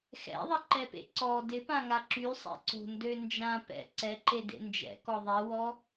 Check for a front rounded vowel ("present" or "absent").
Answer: present